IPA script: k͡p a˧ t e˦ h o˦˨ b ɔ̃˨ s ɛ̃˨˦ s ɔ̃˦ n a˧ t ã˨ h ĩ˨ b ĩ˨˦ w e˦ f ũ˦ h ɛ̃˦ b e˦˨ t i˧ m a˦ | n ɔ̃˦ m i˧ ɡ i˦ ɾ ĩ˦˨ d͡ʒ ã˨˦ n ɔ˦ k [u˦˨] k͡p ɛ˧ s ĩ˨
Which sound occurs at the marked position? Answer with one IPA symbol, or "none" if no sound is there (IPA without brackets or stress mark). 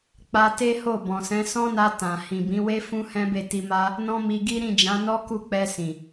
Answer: u˦˨